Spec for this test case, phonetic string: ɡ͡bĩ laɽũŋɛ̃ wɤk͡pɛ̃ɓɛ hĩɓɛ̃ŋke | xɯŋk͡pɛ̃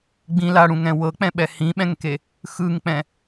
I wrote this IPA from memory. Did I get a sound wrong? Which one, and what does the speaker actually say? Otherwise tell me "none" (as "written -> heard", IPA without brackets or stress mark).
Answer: none